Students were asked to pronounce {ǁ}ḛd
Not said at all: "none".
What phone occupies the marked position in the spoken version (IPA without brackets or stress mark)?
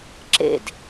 ǁ